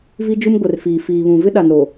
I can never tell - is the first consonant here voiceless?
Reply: no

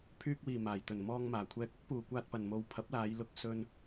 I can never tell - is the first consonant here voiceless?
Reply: yes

